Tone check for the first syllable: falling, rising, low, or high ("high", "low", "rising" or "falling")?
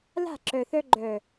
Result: falling